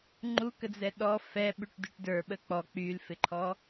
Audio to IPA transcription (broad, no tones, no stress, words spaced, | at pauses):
ŋ͡ǃukəd͡zɛ ɗɔ fɛɓyʈ dyʈdə˞ ɓək͡pɔ k͡pylfɪǃʰɔ